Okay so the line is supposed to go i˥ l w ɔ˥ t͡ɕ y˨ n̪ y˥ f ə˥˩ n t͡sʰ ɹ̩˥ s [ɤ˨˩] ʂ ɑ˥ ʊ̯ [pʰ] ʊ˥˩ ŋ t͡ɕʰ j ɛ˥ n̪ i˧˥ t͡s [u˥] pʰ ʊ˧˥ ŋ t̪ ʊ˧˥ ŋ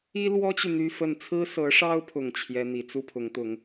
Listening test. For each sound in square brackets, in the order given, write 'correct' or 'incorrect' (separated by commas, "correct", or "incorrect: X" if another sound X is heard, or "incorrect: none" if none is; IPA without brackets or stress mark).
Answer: incorrect: ɤ˧˥, correct, correct